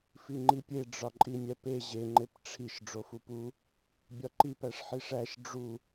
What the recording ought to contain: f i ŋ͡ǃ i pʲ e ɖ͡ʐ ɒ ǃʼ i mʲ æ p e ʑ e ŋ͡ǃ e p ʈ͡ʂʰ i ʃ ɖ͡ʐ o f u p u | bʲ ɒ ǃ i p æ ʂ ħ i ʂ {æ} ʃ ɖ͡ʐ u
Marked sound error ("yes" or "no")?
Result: no